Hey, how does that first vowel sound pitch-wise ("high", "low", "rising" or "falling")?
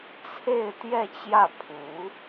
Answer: falling